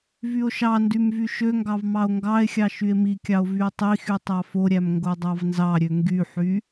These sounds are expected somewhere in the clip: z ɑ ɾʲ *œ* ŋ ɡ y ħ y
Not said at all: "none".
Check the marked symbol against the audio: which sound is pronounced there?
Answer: ø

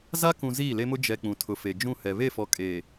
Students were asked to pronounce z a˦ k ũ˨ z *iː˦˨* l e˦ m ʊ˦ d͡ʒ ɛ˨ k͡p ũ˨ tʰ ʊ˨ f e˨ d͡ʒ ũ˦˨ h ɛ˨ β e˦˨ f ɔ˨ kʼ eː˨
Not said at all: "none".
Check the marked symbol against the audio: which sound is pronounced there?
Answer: iː˦˨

